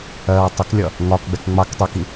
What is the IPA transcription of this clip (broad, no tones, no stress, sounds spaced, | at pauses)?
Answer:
ɜː w tˤ ə k lʲ ʌ | ŋ ɒ k ɡ͡b ɛ k ŋ͡m ɑ k tˤ ɛ k i